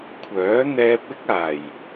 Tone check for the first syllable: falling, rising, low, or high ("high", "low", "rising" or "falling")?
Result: rising